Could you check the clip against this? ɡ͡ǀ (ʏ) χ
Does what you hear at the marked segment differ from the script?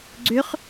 no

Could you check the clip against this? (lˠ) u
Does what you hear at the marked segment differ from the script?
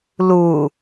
yes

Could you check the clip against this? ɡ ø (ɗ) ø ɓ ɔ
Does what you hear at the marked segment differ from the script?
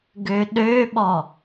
no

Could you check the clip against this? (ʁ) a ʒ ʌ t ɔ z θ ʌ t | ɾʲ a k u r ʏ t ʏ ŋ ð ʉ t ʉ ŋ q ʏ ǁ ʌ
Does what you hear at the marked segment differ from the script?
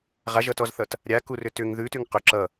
no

